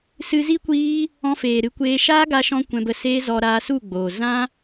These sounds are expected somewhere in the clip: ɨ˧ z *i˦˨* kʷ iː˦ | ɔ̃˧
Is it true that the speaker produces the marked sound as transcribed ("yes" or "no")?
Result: no